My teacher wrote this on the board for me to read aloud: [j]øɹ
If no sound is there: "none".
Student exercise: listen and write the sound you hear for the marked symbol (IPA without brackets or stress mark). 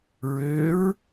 ɹ